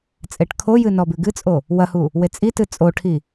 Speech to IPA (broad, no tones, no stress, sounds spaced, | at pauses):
t͡sʼ e ʈ kʰ o j ɨ n ɔ b ɨ ɡ ɨ t͡sʼ o | w ɐ h u | w e t͡sʼ i t ɨ t͡sʼ o ʈʰ i